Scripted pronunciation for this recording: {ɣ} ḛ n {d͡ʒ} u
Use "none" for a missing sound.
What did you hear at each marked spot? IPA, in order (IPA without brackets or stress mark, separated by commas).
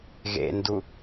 ɣ, d